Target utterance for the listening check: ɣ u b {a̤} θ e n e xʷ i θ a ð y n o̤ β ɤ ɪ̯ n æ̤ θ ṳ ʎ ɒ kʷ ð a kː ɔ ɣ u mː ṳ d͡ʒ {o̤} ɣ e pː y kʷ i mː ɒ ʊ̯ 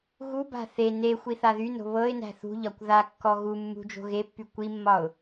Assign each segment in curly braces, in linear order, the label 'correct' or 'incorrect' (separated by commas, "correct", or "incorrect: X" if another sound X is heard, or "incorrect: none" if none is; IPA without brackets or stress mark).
correct, correct